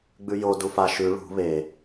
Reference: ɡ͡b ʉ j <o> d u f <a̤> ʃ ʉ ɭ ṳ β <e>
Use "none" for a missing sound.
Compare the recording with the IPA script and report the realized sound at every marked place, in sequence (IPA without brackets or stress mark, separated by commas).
o, a, e